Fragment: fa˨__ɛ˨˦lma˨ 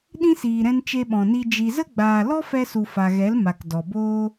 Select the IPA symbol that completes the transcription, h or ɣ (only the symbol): ɣ